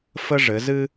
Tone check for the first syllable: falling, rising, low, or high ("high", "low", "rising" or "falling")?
high